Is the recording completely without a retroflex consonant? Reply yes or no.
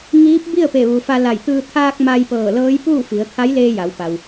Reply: yes